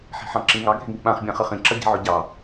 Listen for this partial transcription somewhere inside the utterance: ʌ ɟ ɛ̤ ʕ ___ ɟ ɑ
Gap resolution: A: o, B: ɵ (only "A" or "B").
B